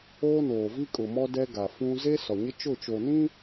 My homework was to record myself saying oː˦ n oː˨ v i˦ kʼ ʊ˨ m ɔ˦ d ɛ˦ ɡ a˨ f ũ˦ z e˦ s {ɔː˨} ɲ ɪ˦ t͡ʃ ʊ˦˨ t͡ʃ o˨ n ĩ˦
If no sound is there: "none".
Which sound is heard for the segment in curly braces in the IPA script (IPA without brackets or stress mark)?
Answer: ɔ˨